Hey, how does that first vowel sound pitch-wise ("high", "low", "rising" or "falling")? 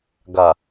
low